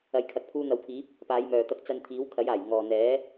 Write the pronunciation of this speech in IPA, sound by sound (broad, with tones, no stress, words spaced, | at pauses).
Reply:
ɐ˨jkʰɐ˨k̚ pʰuː˧n̪ɐ˨˧wpʰiː˨˥p̚ | paː˨˧jmœː˨t̪ɐ˧k̚ t͡sɐ˧nt̪ʰiː˨˥w kʰɐ˨˥jaː˨˩j ŋɔː˨n̪ɛː˨˥